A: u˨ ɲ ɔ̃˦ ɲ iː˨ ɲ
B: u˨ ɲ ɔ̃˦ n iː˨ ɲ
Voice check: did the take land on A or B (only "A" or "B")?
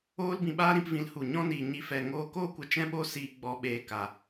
B